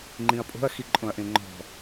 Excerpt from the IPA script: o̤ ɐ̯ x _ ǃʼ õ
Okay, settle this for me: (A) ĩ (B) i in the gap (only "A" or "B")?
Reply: B